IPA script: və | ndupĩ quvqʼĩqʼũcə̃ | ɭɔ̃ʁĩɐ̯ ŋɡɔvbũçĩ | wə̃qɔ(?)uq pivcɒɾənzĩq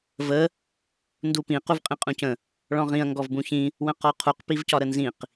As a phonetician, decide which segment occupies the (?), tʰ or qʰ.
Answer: qʰ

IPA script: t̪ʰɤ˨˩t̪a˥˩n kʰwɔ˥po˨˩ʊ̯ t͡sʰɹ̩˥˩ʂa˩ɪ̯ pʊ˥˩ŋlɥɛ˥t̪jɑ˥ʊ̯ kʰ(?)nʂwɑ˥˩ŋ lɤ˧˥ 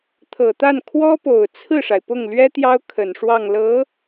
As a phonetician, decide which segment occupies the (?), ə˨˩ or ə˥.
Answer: ə˨˩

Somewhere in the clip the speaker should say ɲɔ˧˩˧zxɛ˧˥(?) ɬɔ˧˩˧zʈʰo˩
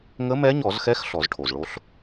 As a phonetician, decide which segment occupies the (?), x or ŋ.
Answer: x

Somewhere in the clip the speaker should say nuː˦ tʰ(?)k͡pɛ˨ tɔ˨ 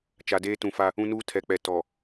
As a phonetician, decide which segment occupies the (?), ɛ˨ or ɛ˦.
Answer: ɛ˨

